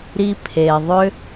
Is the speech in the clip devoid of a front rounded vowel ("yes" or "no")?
no